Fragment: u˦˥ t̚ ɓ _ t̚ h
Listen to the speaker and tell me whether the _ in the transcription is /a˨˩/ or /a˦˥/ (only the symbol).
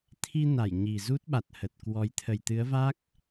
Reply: a˨˩